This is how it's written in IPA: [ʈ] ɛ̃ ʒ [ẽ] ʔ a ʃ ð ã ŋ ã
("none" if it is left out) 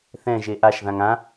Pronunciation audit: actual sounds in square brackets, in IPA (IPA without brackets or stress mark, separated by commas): θ, e